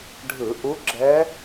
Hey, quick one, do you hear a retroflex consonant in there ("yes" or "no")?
yes